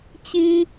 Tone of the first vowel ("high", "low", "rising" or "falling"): high